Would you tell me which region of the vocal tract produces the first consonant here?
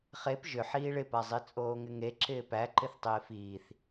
uvula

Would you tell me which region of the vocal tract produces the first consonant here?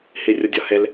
throat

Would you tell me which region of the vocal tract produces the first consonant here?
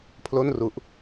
lips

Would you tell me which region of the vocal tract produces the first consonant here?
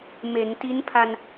lips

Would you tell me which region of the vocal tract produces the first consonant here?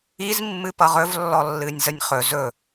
tongue tip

